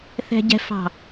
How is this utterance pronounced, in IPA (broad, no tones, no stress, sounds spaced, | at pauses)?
θ ɛ̤ ɟ ɛ̤ f ɑ̤